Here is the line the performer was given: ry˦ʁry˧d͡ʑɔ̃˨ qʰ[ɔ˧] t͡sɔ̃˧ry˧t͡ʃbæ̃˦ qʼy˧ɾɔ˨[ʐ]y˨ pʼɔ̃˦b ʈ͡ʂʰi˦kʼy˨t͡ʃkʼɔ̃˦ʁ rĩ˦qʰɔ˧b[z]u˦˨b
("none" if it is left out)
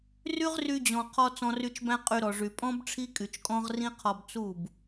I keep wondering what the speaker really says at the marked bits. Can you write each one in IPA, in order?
ɔ˧, ʐ, t͡s

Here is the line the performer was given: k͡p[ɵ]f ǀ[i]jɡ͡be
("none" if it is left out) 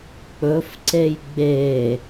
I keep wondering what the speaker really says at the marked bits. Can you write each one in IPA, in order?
ɵ, e

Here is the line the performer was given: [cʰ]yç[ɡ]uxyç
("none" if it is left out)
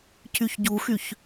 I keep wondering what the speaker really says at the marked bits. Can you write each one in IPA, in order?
cʰ, ɟ

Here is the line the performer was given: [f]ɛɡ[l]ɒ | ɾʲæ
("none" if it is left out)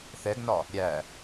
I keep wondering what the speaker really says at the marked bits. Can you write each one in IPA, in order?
θ, n

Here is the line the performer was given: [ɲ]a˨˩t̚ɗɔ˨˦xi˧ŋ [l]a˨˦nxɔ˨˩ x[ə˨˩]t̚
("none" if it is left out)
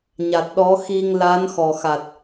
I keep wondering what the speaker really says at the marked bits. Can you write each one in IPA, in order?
ɲ, l, a˨˩

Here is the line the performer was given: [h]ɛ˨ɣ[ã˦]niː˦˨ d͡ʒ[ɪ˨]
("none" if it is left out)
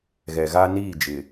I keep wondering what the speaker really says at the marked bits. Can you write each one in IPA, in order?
ɣ, a˦, ɪ˨

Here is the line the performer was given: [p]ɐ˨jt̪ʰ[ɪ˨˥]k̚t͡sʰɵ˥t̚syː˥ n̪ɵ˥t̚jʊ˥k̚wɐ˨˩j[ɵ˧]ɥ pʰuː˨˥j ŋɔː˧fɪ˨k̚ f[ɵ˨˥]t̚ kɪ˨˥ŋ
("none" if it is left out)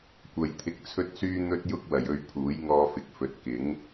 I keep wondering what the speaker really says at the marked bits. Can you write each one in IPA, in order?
kʷ, ɪ˧, ɵ˧, ɵ˨˥

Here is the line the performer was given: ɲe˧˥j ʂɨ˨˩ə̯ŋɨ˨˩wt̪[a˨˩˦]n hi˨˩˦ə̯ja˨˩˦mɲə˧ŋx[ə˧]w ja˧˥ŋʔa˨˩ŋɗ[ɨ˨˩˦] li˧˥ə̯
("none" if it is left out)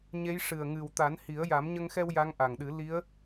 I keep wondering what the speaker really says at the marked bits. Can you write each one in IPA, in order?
a˨˩˦, ɛ˧, ɨ˨˩˦

